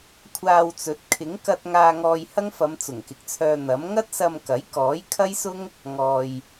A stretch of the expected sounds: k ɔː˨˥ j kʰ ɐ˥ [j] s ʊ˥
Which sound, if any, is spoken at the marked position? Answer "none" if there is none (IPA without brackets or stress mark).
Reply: j